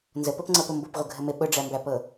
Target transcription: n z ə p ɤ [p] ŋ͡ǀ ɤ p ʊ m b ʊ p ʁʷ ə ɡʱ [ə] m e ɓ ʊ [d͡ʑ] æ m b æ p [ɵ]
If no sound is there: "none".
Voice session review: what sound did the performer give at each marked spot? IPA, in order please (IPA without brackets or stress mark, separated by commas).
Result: p, ə, ɖ͡ʐ, ɤ